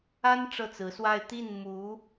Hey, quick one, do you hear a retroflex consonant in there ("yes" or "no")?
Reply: yes